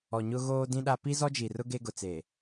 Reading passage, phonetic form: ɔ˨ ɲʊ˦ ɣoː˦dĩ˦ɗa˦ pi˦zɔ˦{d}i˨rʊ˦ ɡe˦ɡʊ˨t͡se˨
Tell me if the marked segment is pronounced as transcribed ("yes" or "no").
no